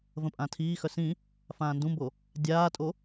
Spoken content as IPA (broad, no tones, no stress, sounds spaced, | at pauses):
v ə̃ pʼ ã tʰ iː x œ s ĩ | f ãː n d ũ m b o | dʲ aː tʼ o